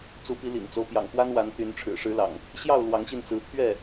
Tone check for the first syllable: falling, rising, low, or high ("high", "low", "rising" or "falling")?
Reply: rising